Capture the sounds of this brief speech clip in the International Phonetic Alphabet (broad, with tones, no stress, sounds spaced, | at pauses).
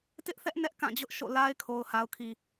t ɪ˦ ʔ θ ɛ˦ ʔ n ɛ˦ ʔ k ã˦˨ d͡ʑ ʊ˦ ʔ ʃ o̰˦˨ l a˦ ɪ̯ kʰ o˨ ʊ̯ h a˨ ʊ̯ kʰ i˨